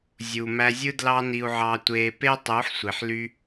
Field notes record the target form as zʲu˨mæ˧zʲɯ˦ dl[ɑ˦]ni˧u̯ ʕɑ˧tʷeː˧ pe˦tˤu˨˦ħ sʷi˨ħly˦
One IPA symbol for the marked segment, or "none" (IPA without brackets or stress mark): ɑ˦